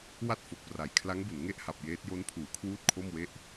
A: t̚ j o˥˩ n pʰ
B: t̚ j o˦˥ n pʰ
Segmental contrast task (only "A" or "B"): B